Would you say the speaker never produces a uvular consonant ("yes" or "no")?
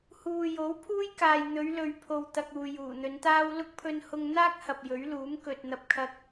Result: yes